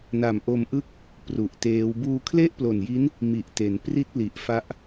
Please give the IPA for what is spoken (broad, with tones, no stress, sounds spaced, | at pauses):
n a˨˩ m ʔ o˧ m ʔ ɯ˥˩ k̚ | p r u˨˩ ʔ t eː˦˥ w b uː˧ kʰ l e˥˩ ʔ p l o˨˩ n j i˦˥ n | m i˨˩ ʔ t e˩˦ n p r i˥˩ t̚ l i˨˩ ʔ f a˦˥ ʔ